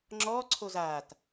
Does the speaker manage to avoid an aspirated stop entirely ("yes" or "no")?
no